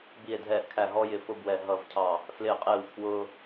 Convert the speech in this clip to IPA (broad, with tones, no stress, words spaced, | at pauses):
bi˧˩e̯dʱɛː˧˩ʔkʰæ˧˩ ɦɔ˦jɪ˧˩ fʊ˦bwɛ˧˩ ɦʌ˧˩vcʰɑ˧˩ | flɪː˧˩qʼɪː˧˩w kʰwʊː˦